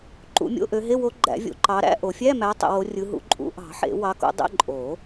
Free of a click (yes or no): no